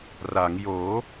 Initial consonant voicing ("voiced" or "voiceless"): voiced